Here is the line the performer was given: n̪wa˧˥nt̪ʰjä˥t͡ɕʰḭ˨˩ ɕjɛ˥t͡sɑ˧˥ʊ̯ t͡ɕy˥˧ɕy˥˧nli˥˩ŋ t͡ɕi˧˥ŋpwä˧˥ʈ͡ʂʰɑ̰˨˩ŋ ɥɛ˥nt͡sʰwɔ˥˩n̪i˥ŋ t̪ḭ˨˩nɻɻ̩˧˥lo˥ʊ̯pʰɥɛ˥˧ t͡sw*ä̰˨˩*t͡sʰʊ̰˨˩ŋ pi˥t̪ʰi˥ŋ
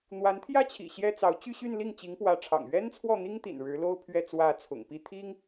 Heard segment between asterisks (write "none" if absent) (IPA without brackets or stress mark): ä˥˩